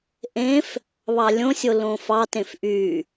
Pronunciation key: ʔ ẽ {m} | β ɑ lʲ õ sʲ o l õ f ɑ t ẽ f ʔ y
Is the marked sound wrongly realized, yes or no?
yes